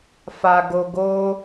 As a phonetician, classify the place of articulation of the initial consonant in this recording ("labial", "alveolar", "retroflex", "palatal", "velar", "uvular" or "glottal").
labial